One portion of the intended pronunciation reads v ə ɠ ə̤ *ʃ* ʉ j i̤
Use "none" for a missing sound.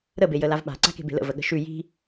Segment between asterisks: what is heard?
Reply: ʃ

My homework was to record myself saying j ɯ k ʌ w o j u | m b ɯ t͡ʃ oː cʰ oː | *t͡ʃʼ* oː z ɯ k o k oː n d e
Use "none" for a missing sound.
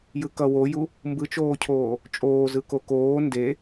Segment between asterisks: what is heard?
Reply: t͡ʃʼ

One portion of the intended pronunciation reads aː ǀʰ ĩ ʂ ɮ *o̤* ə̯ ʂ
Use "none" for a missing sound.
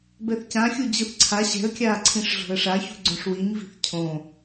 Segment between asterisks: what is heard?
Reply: o̤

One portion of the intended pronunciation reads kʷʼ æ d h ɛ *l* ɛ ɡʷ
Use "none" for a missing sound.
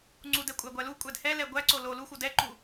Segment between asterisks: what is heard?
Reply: l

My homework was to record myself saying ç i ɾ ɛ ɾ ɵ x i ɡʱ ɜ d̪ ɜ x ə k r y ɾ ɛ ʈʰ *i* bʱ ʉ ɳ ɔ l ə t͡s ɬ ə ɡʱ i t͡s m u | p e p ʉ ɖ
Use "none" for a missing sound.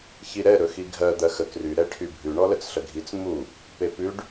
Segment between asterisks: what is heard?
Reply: y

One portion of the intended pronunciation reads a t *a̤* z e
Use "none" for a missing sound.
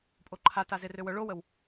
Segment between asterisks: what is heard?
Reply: a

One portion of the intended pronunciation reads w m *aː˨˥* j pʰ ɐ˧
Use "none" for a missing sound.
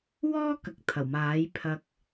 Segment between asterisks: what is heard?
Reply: aː˨˥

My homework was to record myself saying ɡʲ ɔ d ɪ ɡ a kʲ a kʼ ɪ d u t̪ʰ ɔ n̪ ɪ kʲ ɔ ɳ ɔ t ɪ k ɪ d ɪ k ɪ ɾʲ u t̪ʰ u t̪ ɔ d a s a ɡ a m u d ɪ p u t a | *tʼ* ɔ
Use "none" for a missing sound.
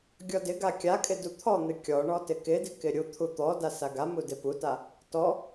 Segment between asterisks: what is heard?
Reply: t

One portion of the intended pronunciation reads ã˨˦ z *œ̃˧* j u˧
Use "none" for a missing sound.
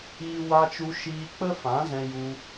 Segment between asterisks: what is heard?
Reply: ɛ̃˧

